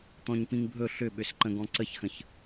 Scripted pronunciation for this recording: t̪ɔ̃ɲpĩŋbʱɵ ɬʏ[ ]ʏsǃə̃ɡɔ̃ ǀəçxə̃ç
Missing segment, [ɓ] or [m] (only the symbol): ɓ